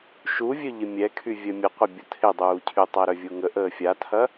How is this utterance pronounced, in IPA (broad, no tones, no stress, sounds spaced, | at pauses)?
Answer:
ʃ u vʲ œ ʎ ɪ mʲ ɛ kʰ y vʲ œ mʲ ə qʷ ɐ bʲ ə tʰ ɪ dˤ uː cʰ y tˤ a ɾ œ vʲ u ŋ ə ʔ əː fʲ a tʰ ɐ